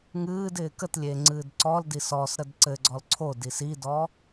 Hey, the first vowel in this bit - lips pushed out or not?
no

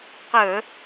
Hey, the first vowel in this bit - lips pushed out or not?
no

